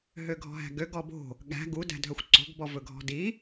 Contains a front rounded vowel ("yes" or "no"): yes